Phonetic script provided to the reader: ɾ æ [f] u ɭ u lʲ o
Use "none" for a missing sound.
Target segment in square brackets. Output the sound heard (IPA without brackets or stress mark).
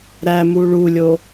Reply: m